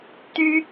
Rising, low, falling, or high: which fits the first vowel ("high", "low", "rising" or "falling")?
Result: high